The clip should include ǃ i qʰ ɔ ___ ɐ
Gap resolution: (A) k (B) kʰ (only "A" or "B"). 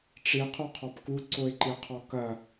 A